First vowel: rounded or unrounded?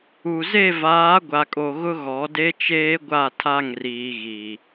rounded